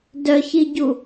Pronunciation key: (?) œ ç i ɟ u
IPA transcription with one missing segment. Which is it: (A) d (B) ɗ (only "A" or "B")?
A